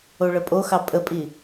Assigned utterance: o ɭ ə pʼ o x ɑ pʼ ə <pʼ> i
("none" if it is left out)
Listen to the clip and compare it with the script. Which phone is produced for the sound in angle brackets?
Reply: pʼ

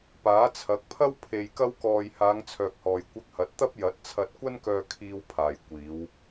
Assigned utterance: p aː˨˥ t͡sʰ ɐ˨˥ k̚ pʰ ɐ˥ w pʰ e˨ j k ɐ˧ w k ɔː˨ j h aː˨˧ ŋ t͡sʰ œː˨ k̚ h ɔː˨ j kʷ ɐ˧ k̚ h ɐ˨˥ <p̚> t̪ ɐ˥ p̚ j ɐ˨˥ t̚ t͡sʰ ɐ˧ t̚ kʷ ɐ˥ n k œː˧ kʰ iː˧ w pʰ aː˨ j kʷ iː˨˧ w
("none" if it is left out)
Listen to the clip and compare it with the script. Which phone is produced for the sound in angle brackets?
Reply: t̚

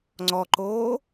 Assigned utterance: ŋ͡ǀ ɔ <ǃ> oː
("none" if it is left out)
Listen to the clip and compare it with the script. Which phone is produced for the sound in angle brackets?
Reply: ǃ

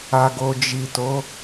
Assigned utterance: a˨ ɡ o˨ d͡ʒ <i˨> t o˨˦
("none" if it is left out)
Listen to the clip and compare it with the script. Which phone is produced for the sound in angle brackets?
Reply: i˨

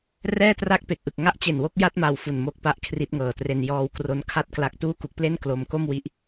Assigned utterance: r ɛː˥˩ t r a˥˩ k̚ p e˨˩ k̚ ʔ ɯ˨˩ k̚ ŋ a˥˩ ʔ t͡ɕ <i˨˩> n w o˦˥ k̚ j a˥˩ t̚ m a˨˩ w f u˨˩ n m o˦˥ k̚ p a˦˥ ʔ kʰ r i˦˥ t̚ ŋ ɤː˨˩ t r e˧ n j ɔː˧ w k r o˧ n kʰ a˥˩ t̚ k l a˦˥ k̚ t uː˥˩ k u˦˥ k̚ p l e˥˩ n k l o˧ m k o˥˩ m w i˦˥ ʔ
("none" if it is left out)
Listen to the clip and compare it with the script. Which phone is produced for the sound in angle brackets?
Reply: e˨˩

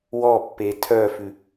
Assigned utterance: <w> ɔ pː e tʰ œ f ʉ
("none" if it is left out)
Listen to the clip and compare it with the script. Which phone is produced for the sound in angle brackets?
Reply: w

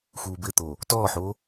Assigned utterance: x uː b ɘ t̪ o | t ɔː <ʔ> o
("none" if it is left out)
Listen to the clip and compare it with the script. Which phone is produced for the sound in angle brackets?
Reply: ħ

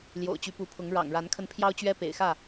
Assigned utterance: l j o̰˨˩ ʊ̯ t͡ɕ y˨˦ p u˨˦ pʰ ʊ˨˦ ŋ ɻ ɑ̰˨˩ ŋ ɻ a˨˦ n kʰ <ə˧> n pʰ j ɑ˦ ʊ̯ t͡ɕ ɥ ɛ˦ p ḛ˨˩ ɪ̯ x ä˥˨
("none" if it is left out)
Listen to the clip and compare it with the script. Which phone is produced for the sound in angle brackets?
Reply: ə˧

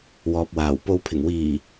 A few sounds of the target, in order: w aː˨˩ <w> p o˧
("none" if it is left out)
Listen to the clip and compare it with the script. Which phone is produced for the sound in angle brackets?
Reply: w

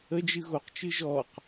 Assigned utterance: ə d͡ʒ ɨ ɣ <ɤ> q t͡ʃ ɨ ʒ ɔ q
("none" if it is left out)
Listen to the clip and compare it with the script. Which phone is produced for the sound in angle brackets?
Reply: o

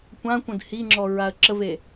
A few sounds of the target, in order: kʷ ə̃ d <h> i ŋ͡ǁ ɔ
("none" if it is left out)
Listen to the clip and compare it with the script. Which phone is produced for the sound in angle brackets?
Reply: h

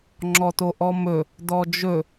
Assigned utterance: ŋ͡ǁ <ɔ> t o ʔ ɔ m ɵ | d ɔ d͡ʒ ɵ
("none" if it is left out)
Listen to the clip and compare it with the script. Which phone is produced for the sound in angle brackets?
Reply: ɔ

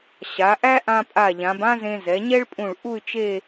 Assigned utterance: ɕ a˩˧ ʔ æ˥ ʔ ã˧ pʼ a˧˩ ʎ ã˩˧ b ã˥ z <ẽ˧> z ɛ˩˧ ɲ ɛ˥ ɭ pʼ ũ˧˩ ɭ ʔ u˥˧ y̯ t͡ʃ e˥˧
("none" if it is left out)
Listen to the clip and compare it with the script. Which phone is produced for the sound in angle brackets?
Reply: ẽ˧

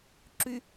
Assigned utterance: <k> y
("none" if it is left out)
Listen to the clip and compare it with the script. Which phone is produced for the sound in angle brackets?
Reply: ǁ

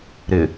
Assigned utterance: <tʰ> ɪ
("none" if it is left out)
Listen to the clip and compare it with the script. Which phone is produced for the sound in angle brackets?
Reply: ɾ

